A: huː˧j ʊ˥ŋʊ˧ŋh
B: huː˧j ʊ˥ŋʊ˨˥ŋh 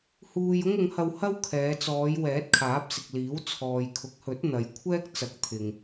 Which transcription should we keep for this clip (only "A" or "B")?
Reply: B